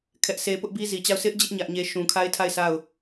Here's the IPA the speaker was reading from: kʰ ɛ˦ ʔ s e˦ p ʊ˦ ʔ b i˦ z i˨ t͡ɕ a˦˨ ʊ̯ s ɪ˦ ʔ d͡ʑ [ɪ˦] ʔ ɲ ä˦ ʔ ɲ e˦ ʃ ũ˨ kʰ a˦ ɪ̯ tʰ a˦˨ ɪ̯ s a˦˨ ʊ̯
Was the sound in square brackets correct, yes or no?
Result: yes